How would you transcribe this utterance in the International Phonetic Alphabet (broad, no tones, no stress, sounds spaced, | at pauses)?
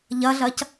ʎ ɐ ɮ ɐ c